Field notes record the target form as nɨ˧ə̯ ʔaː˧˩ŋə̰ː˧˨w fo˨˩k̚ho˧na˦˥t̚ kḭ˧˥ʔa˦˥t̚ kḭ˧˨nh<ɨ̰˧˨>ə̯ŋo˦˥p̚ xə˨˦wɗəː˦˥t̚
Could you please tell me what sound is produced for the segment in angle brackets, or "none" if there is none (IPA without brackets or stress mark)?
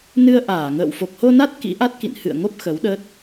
ɨ̰˧˨